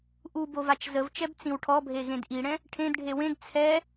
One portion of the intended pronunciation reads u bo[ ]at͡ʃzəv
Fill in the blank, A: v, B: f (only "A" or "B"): A